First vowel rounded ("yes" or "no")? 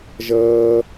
no